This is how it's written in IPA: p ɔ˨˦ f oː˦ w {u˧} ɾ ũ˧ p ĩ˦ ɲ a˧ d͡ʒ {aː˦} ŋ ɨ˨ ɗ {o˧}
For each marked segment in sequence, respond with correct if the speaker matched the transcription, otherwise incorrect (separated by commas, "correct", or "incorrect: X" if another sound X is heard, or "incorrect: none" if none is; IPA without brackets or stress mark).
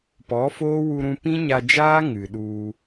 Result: correct, correct, incorrect: u˧